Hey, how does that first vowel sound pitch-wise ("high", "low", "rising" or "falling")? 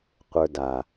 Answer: low